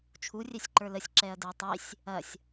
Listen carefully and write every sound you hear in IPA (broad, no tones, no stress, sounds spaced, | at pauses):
t͡ʃʰ u rʲ ɛ sʲ ǃ ə˞ l ə sʲ ǁ ɛ ɐ̯ d ə˞ tˤ i sʲ | ɐ sʲ